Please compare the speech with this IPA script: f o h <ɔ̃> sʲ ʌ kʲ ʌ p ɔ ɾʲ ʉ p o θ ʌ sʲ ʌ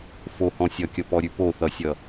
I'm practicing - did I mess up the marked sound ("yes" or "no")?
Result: no